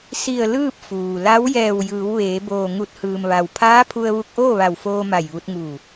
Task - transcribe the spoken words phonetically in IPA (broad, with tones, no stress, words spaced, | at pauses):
si˧˩ə̯ lɯː˥˨p̚fuː˩la˧˥w jɛː˧˩wjɯː˩˧w ʋeː˩˧ boː˧˩ ŋu˧˩t̚hɯː˩mʋa˩w pʰaː˧˥pʰu˧ə̯ʋu˧k̚ ʔoː˥˨ʋa˧˩wfoː˧ ma˧˩jʋu˧t̚ŋuː˧˩